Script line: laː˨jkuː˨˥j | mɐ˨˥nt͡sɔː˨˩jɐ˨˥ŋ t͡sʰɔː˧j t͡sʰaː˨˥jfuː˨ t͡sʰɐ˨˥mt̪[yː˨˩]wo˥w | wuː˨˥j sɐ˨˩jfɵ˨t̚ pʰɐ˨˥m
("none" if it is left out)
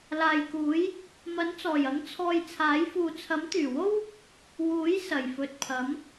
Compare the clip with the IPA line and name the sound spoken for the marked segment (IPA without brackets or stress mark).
yː˨˩